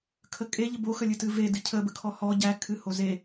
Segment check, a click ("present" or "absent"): absent